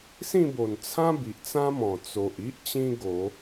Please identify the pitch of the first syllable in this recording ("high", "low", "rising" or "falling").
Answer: falling